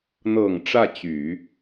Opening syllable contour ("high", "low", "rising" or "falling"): low